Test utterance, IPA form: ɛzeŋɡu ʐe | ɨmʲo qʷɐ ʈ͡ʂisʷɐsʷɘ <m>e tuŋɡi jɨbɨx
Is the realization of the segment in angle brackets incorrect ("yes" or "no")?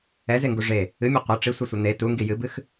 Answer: yes